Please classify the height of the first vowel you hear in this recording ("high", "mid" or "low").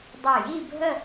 mid